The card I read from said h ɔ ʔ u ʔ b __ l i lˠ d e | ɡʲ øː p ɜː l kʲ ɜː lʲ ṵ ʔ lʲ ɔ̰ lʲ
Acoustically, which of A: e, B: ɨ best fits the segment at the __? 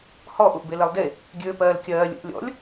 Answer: A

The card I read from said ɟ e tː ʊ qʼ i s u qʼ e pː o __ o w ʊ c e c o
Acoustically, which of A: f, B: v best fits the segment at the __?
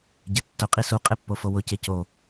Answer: A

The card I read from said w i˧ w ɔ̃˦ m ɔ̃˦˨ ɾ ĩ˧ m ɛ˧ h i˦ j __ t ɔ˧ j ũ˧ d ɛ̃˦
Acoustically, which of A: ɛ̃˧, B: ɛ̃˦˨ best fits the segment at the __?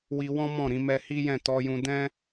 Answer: B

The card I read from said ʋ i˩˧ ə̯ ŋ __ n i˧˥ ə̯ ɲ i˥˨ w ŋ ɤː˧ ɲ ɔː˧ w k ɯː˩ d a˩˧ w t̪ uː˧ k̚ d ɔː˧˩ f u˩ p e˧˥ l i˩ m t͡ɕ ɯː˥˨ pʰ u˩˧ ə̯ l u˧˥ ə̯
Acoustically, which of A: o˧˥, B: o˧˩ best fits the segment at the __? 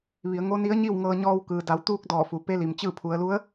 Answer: A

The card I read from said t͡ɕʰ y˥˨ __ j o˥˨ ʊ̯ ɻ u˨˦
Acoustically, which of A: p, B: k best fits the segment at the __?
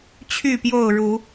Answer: A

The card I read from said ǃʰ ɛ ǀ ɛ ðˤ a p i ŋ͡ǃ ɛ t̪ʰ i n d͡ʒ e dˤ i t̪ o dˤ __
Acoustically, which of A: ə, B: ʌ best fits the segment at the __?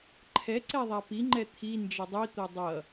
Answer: B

